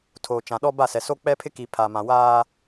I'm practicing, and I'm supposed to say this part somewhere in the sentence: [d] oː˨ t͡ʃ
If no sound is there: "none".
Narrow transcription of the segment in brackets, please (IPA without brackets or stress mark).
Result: tʰ